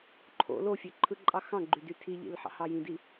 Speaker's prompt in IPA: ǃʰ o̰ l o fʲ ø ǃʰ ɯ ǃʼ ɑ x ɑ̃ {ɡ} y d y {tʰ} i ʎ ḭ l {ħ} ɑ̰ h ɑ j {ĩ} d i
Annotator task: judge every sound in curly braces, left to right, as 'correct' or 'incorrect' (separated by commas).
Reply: incorrect, correct, correct, correct